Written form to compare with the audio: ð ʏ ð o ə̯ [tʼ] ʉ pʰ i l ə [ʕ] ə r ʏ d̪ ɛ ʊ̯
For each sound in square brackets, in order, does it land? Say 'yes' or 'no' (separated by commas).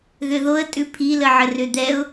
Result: yes, yes